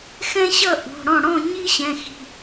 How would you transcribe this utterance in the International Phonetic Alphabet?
xɛ̃˥ɕʌ˥˧ ʔṳ˩˧˩ɽɔ̃˥˩ ɽɔ̃˥˧ ɲi˥ɕɛ̃˩˧˩xi̤˩˧˩

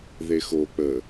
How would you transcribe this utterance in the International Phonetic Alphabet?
ðexo k͡pə

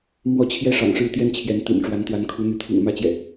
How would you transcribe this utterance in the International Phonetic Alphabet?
mwɔ˥˨ t͡ɕʰjɛ˦ʂɑ̰˨˩ŋʂɻ̩˥˨ t̪jɛ˦n t͡ɕʰjɛ˨˦nt̪ḭ˨˩n ʈ͡ʂwa˨˦nt̪wa˨˦n kʰu˨˦n̪y˨˦ t̪ʰḭ˨˩ŋ mä˦t͡ɕjɛ̰˨˩

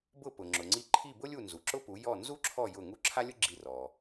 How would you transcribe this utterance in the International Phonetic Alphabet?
bʊ˥˩ pʊ˩ ŋ͡ǁʊ˩ŋ͡ǀi˧ ǃʰi˥˩bʊ˥lʲu˥˩ nzu˩ǁʊ˥pu˩˥ jɔ˥˩ nzu˥ǁʰɔ˥˩ jʊ˥˩ ŋu˥˩ǁʰa˥lʲʊ˥ ɡ͡ǁi˥˩ rɔ˩

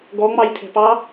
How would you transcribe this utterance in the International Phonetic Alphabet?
ɡɔŋ͡mɑjtʰɛ̤pɑ

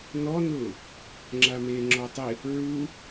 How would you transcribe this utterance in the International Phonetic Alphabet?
nɔnʊː | ŋ͡ǁameːŋ͡ǁɔtˤɪ | ɹu

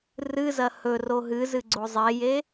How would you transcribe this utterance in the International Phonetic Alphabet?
rɨzɐ hɵro ɦɨzɨɡ͡ǀo zˤeje

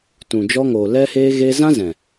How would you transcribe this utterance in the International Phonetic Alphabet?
tũ˨d͡ʒɔ˧ŋoː˨ lɛ˦heː˦ ɣeː˧zã˦ zɛ̃˨

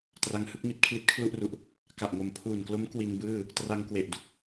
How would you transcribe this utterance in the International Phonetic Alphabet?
tra˦˥ŋhɯ˦˥k̚ mi˦˥t̚kʰli˦˥t̚kʰlu˥˩ʔru˨˩ʔ | ka˨˩ʔŋo˨˩mpʰuː˨˩nklo˦˥m kwi˧nbɯː˥˩ | tra˧ŋkwe˨˩ʔdu˥˩k̚

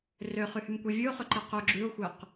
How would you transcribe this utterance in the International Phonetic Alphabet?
røχyhymkʷi vʲʉo̯χɵǃɛ qɵ ɡ͡ǁʉo̯xʷœq

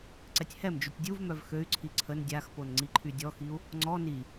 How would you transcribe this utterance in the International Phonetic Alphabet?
ǀɛtʲhɛmd͡ʒytʲ dʲuvmœv xøy̯ǀʰi ǀʰən dʲaxpon ŋ͡ǀiǃʰydʲɔxiu̯ | ŋ͡ǀɔ ni

